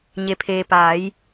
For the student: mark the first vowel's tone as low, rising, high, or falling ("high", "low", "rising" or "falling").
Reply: low